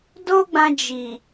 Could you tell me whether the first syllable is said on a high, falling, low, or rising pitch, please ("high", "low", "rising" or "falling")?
high